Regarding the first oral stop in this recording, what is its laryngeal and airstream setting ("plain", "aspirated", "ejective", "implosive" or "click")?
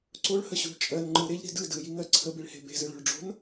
click